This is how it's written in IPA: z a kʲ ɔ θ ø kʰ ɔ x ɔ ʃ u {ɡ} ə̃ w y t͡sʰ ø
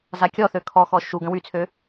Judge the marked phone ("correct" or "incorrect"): correct